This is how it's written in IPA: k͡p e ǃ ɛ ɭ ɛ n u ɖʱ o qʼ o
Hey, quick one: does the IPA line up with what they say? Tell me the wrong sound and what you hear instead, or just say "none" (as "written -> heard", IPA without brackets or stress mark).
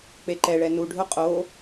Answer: none